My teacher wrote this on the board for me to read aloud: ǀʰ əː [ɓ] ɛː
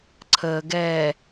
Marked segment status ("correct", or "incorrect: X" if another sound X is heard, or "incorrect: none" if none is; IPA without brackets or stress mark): incorrect: ɡ